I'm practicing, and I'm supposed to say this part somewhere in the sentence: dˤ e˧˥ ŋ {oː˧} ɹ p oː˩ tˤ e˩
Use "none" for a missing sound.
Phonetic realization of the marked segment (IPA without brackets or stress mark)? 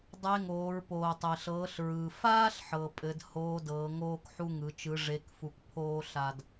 oː˩˧